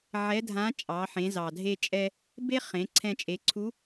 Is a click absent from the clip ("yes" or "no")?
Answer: no